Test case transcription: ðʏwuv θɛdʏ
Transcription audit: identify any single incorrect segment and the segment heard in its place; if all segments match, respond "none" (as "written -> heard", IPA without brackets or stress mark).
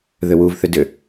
ɛ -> ʏ